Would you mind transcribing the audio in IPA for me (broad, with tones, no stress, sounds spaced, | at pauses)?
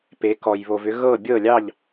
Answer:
p e˩˧ k ɔ˩ j β o˩ v ʏ˩˧ ɣ ɤ˧˩ bʲ ɤ˧˩ lʲ ɑ˧˩ ʎ